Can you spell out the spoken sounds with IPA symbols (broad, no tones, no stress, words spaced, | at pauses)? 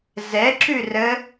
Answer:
zɛǁʉ rə